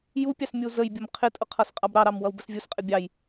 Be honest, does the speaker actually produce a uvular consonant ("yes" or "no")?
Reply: yes